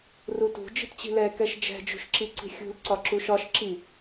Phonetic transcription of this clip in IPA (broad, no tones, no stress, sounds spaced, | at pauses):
r u t ṳ d͡ʒ i̤ t t͡ɕ i̤ l ɛ k ɛ ʃ d͡ʒ ɛ̤ d͡ʒ ṳ ʃ ǁ i ǀ i̤ xʲ ṳ l ǀ ɒ ǁ u ʃ ɒ ʃ ǁ i